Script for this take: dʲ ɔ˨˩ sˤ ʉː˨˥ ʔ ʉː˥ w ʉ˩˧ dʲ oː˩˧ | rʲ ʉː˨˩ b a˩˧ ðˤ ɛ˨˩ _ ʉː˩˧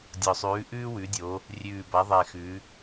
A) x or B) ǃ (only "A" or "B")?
A